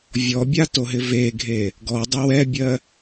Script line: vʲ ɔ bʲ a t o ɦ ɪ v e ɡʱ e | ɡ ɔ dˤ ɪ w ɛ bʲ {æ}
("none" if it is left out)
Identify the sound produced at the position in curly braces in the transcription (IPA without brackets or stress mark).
ɜ